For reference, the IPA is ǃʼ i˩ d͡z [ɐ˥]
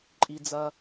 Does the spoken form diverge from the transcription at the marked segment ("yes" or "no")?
yes